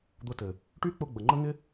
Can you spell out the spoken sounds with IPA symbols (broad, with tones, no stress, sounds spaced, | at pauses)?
d̪ ʊ˧ t ɘ˨ | ʈ y˦ k͡p ʊ˧ ɡ͡b ə˨ ŋ͡ǃ ə˦ ŋ ɪ˦